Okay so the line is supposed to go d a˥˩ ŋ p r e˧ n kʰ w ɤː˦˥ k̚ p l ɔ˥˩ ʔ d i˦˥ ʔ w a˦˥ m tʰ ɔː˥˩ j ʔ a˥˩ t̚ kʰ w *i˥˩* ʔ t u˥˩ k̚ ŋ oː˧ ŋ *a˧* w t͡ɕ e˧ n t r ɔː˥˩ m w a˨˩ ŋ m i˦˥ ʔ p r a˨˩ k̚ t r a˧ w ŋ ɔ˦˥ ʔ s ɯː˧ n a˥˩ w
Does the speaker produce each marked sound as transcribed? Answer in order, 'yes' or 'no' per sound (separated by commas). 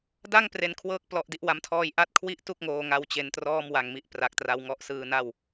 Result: yes, yes